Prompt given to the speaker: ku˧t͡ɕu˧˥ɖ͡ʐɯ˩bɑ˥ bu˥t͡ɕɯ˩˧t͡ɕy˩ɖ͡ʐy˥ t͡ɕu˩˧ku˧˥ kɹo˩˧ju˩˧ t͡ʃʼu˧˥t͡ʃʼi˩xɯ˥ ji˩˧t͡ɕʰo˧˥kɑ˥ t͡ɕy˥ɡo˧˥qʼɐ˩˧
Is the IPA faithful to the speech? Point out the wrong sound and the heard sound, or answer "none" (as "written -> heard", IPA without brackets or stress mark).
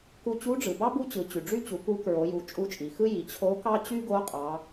ɐ˩˧ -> ɑ˩˧